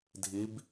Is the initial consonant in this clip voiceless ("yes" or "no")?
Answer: no